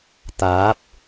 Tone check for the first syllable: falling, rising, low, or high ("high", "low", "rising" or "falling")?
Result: rising